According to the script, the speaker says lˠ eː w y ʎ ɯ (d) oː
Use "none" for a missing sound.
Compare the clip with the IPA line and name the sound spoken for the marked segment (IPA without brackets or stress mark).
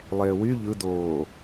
d